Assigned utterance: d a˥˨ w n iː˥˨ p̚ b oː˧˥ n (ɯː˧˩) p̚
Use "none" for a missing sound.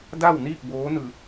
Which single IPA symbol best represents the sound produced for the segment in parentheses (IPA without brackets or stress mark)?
ɯː˧˩